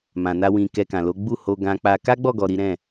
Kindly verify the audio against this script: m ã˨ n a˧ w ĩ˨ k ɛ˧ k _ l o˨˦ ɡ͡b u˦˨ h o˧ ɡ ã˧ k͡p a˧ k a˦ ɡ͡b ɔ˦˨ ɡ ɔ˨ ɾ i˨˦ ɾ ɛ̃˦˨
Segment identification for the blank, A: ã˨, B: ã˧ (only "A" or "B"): A